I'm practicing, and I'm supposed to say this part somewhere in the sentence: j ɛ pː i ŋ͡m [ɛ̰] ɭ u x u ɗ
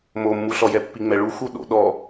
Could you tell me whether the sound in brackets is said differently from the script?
yes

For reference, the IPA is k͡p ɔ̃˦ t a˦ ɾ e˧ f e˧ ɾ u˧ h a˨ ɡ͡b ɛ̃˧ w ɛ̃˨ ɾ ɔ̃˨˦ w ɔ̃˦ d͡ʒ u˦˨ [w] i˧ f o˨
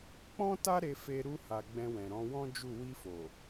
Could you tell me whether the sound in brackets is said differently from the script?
no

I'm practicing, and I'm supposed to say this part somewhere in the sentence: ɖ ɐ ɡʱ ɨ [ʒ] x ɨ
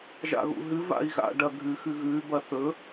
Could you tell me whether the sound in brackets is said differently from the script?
yes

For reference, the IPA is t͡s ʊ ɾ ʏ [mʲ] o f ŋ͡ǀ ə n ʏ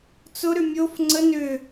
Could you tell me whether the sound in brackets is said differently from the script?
no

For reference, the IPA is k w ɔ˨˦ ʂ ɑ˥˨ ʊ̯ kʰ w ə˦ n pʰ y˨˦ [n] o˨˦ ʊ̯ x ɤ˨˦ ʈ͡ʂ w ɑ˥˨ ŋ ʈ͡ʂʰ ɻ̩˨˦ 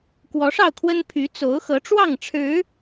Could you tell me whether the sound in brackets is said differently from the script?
yes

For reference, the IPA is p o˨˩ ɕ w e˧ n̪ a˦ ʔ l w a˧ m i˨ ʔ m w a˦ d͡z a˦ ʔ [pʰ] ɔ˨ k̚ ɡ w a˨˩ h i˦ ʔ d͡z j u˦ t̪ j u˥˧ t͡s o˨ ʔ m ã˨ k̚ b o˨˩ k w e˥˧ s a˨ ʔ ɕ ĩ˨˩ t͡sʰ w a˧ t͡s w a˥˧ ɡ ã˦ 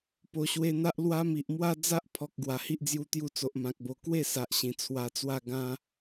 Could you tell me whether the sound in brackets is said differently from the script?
no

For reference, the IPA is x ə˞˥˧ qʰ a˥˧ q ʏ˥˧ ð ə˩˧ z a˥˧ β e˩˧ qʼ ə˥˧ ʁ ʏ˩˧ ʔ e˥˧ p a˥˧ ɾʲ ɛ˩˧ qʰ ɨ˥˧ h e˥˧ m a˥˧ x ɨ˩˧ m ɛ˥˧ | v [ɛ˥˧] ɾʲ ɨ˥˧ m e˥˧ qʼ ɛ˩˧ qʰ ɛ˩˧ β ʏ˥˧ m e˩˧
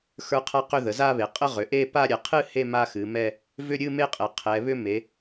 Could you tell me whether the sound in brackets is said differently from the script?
yes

